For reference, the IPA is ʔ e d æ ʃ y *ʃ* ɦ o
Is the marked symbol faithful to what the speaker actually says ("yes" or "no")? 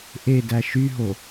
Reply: no